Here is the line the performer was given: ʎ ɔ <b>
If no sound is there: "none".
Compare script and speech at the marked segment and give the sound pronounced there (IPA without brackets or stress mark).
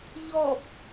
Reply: b